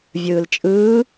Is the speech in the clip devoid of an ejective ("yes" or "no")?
no